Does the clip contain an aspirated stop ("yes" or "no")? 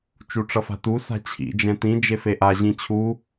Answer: yes